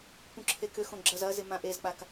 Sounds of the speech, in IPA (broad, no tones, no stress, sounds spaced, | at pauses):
p ũ ǁʰ e k ʏ x õ ɡ͡ǁ ɐ z ɐ z ɪ m ã ʔ e z k͡p a k